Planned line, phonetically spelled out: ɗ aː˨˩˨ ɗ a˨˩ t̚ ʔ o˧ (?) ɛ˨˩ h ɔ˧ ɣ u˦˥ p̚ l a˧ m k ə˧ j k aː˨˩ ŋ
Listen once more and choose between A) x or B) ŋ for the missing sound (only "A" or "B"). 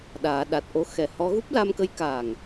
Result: A